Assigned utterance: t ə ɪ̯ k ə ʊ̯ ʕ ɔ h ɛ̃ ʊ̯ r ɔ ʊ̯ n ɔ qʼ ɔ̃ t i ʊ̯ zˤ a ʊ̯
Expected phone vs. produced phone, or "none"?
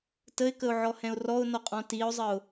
a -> ə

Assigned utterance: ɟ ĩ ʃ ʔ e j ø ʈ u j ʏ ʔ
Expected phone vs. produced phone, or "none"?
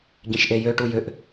none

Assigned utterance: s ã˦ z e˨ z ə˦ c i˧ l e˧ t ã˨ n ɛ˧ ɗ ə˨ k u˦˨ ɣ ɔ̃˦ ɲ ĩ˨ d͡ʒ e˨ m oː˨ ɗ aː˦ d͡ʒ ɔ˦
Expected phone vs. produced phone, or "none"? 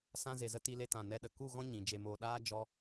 c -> t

